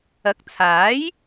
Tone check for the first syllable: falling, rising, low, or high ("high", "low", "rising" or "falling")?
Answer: rising